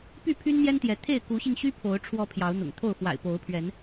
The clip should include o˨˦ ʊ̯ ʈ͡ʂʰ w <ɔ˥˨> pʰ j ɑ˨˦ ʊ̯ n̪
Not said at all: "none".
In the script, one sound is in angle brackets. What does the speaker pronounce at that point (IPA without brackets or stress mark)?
ɔ˨˦